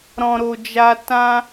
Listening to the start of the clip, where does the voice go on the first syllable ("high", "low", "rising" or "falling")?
low